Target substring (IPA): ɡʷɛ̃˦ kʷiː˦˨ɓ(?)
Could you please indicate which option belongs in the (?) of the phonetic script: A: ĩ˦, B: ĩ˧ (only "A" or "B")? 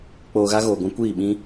A